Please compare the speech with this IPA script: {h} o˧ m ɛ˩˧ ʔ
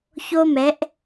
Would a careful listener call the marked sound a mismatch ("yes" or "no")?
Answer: yes